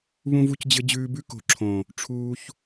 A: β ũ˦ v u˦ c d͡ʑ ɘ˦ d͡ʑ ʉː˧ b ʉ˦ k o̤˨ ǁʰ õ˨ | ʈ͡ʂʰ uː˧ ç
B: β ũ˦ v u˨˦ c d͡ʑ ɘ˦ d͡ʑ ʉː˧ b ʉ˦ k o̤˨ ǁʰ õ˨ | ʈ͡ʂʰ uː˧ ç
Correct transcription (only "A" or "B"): A